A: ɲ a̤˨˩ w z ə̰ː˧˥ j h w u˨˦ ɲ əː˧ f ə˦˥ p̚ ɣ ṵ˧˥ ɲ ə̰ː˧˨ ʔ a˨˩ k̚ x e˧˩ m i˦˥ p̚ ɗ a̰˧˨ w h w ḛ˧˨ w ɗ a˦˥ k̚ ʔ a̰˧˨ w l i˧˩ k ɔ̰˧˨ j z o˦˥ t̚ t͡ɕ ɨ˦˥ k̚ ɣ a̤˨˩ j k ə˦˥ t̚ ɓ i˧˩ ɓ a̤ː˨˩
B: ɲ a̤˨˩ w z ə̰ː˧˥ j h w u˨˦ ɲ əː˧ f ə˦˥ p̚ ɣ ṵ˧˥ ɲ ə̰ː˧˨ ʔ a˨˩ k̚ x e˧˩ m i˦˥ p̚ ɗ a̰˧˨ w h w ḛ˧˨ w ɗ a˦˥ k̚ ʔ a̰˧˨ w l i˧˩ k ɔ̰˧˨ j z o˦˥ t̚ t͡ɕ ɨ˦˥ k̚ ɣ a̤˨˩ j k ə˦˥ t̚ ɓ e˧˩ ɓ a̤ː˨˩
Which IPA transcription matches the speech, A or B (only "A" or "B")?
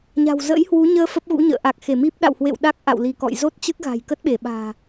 B